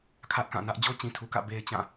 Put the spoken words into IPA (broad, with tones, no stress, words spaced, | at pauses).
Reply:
kʰä˦ʔkã˦˨nä˦ʔ d͡ʑo˦t͡ɕĩ˨tʰu˨kä̰˦˨ be˦ɪ̯t͡ɕã˦˨